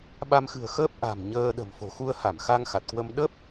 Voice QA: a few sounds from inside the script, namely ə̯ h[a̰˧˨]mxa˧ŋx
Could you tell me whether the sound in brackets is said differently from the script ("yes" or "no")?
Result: yes